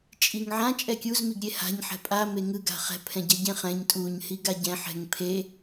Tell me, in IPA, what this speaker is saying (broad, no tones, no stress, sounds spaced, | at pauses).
t͡ʃʼ i ŋ ʕ ã t͡ʃʼ ɛ kʲ u z m i ɡ ɾʲ e h a̤ ɲ ħ ɛ̤ pʼ a m e ŋ ɯ ɡ a̤ χ ɛ̤ pʰ ɛ̃ ɟ ɛ ɟ ẽ χ ɛ̃ ɲ tʼ u ɲ h i ɡ a ɟ ɛ̃ ħ ɛ̤ ŋ pʰ e